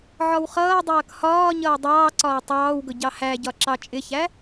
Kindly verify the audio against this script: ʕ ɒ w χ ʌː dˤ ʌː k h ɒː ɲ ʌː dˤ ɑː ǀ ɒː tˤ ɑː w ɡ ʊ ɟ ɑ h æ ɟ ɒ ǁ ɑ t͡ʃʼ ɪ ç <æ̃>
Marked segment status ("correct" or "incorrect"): incorrect